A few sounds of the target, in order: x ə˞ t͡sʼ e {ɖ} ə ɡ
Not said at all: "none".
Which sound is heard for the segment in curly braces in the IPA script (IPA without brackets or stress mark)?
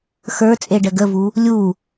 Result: ɖ